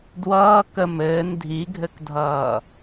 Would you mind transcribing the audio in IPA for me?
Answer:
d w ʌː k ə m ɘː n dʱ i ɡʱ ɘ k dʱ ʌː

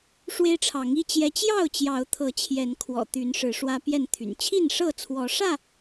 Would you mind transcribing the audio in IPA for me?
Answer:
ʂ w e˦ ɪ̯ ʈ͡ʂʰ ɑ˨˦ ŋ i˥˨ t͡ɕ j ɛ˦ t͡ɕ j ɑ˥˨ ʊ̯ t͡ɕ j ɑ˨˦ ʊ̯ t̪ʰ ɤ˨˦ t͡ɕʰ j ɛ˨˦ n kʰ w ɔ̰˨˩ t̪ y˨˦ n ʂ ɻ̩˨˦ ʂ w ä˦ p j ɛ˥˨ n t̪ʰ y̰˨˩ n t͡ɕʰ i˥˨ n ʂ ɤ˥˨ t͡sʰ w ɔ˨˦ ʂ ä˥˨

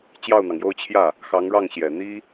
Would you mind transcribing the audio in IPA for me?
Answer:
t͡ɕ j ɑ˥˩ ʊ̯ n̪ ɑ˩ ŋ j o˥˧ ʊ̯ t͡ɕʰ j ä˥˩ | x ɑ˧˥ ŋ ɻ ɑ˥˩ ŋ ɕ j ɛ˨˩ n̪ i˥

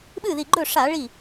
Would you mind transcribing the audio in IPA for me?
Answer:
ɓ ɨ˥˩ ð i˧˩ ɡ͡ǃ ɵ˥˩ ʂ a˧˩˧ ɭ i˥˩

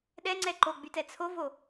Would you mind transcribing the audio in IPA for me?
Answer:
ɗ ɛ ŋ͡ǀ ɛ ǃ o ɡ͡b y t ɛ t͡sʰ o v o

